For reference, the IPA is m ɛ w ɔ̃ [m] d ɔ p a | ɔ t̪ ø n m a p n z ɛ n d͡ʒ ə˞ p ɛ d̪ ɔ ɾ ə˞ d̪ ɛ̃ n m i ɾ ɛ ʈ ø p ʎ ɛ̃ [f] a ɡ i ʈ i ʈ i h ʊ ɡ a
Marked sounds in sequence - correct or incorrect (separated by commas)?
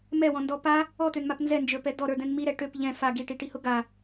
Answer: incorrect, correct